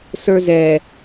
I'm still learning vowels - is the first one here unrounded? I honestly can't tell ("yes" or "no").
yes